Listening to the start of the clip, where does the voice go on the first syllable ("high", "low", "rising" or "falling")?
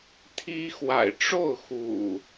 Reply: high